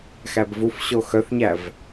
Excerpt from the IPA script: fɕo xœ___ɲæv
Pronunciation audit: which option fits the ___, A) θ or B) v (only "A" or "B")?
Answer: A